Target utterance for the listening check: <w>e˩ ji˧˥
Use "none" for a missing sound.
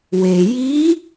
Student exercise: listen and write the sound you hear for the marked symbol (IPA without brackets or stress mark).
w